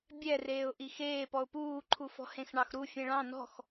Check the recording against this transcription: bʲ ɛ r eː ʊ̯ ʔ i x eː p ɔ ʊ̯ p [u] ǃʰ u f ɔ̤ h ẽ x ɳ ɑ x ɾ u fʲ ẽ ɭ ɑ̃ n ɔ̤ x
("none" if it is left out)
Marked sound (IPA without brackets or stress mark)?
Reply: uː